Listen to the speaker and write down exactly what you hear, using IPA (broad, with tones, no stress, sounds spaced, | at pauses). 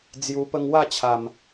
d͡z j u˧ p ə˦ ŋ w a˥˧ t͡ɕʰ a˨˩ m